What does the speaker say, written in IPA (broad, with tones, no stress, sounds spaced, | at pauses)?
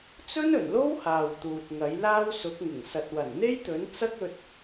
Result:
t͡s ɵ˥ n ɵ˨˩ n l o˥ w h aː˨ w t̪ uː˨ t̚ ŋ ɐ˨˥ j l aː˥ w s ʊ˨˥ k̚ ŋ ɪ˨˩ ŋ s ɐ˨ t̚ w ɐ˨˩ n n̪ e˥ j t̪ ɵ˨˥ n t͡s ɐ˥ k̚ ɵ˧ t̚